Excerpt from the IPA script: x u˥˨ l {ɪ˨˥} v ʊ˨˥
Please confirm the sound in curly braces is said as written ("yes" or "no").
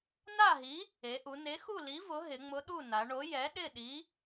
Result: no